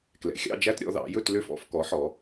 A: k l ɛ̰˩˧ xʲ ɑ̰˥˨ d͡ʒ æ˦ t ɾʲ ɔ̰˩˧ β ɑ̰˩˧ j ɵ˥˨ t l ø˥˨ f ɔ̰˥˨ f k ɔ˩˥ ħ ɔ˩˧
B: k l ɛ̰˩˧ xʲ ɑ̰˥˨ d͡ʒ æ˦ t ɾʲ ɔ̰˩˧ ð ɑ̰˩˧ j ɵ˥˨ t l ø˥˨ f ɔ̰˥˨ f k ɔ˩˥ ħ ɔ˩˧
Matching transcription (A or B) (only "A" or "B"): B